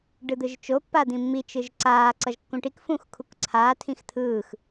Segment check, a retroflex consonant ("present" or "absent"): present